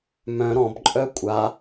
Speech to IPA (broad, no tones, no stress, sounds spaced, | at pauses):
m œ̃ ɾ ɔ̃ b ǃʼ œ kʷʼ a